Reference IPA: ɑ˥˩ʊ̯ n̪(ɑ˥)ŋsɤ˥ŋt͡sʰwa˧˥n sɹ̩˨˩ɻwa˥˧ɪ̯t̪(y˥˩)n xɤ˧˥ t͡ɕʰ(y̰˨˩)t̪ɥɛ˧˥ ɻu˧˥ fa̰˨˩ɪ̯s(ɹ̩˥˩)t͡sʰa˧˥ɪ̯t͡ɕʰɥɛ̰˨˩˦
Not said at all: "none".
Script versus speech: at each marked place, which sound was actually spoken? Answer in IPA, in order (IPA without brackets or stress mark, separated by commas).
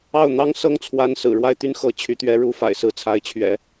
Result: ɑ˥, y˥˩, y˧˥, ɹ̩˥˩